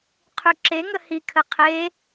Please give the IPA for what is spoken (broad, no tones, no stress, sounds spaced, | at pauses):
qʰ y ǁ e ŋ ə h i kʰ ə qʰ e